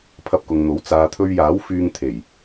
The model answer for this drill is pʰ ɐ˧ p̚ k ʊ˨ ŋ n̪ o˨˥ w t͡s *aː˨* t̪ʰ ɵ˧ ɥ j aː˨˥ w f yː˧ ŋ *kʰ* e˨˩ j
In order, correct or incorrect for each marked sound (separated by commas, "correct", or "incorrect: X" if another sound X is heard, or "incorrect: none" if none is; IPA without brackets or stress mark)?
correct, incorrect: t̪ʰ